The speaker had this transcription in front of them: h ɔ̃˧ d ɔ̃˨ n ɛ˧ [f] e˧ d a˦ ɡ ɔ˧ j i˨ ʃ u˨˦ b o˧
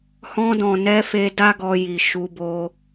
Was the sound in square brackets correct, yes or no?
yes